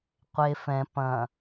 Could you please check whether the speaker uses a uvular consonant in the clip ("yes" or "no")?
yes